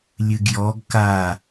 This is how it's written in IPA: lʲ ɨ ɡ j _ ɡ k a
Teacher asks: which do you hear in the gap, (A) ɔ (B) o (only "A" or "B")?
A